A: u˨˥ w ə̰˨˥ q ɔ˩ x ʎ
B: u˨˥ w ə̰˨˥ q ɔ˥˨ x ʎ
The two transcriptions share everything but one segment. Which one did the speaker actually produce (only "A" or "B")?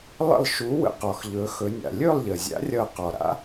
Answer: A